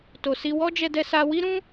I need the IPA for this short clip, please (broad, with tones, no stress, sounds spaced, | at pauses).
t o˨ s i˧ w ɔ˦ d͡ʒ ɛ˧ d ɛ˧ s a˧ w i˦ ɾ ũ˦